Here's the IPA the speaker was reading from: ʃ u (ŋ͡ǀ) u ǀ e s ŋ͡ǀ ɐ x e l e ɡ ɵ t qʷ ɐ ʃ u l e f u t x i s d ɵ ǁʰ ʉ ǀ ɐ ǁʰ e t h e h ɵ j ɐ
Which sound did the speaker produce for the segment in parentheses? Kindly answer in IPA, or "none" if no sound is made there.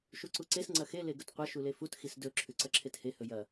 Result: ǀ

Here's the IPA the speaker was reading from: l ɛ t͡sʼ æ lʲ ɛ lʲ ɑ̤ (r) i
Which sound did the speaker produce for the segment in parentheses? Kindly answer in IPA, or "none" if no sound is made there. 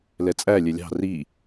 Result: r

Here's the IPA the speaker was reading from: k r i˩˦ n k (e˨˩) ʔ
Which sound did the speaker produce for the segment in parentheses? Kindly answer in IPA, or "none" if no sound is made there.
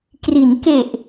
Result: e˨˩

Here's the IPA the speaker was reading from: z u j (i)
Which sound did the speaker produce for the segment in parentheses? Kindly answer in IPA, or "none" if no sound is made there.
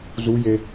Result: e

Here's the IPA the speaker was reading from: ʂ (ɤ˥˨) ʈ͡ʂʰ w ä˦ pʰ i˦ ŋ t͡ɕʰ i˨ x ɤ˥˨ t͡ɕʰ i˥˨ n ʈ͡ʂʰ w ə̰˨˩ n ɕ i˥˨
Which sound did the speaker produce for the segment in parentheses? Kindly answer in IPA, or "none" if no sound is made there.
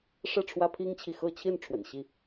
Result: ɤ˥˨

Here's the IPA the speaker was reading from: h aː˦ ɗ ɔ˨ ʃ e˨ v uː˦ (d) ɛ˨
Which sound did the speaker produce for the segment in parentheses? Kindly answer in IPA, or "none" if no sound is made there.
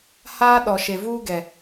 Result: ɡ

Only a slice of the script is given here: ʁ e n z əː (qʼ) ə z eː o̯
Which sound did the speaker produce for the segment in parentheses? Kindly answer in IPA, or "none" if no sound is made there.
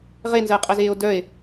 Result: qʼ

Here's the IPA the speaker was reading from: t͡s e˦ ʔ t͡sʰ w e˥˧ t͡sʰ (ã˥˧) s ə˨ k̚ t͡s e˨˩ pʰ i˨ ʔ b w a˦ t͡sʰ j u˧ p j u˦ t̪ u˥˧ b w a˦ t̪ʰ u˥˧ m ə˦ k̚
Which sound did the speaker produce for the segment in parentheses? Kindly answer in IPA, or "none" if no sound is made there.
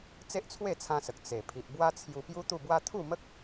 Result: ã˧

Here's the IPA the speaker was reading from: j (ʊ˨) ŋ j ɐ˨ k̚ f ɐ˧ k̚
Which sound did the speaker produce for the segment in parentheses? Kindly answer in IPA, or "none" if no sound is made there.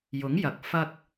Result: ʊ˨˥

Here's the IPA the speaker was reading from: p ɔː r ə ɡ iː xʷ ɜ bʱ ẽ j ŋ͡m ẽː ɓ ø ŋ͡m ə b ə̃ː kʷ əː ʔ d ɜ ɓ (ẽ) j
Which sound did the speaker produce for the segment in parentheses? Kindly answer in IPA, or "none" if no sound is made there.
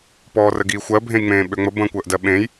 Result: ẽ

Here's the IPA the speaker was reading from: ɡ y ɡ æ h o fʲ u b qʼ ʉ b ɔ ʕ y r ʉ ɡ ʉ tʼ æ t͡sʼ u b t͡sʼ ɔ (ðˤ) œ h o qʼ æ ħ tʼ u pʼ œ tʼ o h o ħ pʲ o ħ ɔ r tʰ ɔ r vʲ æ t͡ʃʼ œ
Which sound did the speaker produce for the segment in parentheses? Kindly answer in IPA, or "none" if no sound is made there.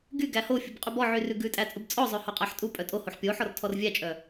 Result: zˤ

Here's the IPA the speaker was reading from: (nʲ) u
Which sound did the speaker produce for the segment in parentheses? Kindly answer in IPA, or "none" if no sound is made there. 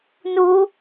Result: n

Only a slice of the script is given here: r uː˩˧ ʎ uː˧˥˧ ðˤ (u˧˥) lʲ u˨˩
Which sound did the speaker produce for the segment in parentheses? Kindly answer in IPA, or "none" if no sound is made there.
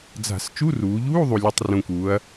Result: u˨˩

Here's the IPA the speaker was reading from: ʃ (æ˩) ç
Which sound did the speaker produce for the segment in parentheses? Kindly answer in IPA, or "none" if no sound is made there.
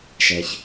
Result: ɛ˩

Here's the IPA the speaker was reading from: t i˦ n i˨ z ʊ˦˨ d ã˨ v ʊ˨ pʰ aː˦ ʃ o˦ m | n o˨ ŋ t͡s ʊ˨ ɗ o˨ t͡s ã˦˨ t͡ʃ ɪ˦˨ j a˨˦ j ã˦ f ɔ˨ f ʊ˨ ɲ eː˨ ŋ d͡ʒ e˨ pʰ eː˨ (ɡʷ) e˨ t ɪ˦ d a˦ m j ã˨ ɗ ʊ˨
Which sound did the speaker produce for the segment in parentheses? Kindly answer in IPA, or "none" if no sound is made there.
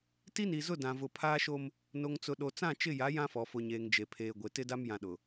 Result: ɡʷ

